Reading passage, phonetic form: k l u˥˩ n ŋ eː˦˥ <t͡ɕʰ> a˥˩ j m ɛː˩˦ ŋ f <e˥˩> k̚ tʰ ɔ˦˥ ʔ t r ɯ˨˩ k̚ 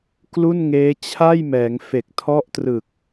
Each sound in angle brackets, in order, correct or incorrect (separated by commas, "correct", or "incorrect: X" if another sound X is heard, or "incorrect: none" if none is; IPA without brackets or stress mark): correct, incorrect: e˨˩